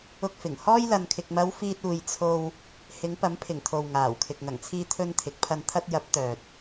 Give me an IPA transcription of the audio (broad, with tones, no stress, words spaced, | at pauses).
ʊ˧k̚fɪ˨˩ŋ hɔː˧jlɐ˨nkʰɪ˨k̚mɐ˨˧w fiː˧t̚uː˧j t͡sʰo˧w | hɪ˨˧ŋpɐ˨˥mpʰɪ˨˩ŋ t̪ʰo˨w ŋaː˨˩wkʰɪ˨k̚ ŋɐ˨˩ŋt͡sʰiː˧t̪ʰɵ˧n t̪ʰɪ˨˥k̚pʰɐ˧n t̪ʰɐ˧t̚jɐ˨˥p̚ t̪œː˨t̚